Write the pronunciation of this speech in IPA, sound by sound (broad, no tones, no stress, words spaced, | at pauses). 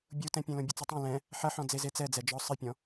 bʲutɛ̃pʲẽ lõbʲɨt͡sutˤõ lɛ̃ | ħɐħɔ̃ d͡zezet͡sɛd͡zɛ d͡ʒɔ sˤɨpʲɔ̃